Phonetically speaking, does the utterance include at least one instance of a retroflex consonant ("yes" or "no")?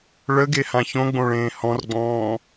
yes